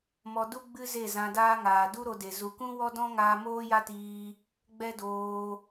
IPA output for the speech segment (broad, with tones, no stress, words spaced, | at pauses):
mɔ˧du˦ ɡ͡bɨ˦ze˦˨ zã˧daː˦ŋaː˨ du˦ ɾo˧de˨ zu˨kũ˦ wɔ˦dɔ̃˦ŋaː˧ moː˦ja˦tiː˧ | ɡ͡bɛ˦doː˧